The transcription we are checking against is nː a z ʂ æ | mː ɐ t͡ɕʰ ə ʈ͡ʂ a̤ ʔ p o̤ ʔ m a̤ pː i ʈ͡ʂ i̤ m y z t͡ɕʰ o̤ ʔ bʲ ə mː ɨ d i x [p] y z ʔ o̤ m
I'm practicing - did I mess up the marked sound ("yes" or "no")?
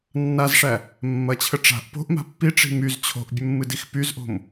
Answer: no